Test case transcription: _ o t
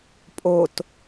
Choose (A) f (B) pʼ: B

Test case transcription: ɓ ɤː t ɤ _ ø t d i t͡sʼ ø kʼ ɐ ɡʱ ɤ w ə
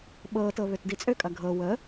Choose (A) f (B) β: B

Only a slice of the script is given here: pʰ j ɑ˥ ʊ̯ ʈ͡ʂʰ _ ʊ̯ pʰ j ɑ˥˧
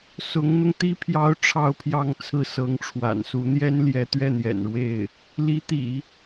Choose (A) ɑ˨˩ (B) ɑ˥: B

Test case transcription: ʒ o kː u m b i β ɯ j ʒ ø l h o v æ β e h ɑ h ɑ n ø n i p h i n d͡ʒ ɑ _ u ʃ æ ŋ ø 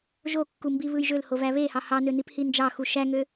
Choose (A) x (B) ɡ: A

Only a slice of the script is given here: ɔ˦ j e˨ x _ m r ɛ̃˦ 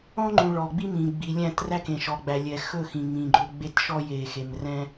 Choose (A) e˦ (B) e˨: B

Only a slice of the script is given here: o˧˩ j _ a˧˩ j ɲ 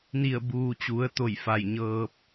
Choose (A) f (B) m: A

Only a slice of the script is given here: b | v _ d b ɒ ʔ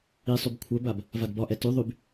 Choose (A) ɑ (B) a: B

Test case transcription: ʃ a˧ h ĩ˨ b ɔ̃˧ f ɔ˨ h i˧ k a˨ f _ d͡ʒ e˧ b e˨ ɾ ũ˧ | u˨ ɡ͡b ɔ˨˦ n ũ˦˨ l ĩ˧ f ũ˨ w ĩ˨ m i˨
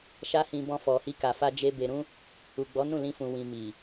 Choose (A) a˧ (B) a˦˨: A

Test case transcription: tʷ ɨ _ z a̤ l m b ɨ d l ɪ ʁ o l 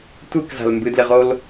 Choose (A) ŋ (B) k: B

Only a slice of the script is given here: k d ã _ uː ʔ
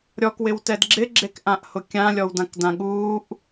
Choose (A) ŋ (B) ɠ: B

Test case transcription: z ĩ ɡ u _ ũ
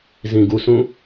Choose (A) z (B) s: B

